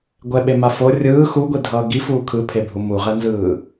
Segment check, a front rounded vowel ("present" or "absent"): absent